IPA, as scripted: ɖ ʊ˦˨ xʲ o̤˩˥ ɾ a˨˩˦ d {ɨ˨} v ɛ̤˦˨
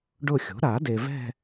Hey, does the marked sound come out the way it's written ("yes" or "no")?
no